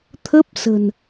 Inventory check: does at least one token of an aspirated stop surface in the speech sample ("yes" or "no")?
yes